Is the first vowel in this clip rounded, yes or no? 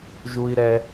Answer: yes